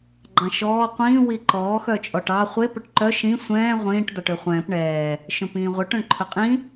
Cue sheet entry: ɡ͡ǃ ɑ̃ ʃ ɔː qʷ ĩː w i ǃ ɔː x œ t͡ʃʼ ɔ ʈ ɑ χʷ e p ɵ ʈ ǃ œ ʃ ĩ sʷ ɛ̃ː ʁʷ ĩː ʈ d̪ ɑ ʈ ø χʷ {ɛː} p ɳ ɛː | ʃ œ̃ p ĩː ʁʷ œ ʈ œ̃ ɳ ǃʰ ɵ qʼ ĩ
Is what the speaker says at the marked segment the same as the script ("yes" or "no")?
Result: no